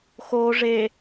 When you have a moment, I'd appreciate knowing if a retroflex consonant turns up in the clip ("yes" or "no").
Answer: yes